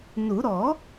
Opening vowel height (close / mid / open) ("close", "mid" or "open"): close